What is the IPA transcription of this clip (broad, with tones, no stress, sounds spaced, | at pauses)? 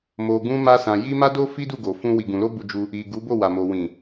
m o˨ ɡ ũ˧ m a˧ s ã˨ j i˧ m a˦ d o˦ f i˦ d u˦˨ ɡ o˨ f ũ˧ w i˨ ɡ ũ˨ l o˧ b u˧ d͡ʒ u˧ | i˨ ɡ u˨˦ b o˦˨ w a˨ m o˨ w ĩ˨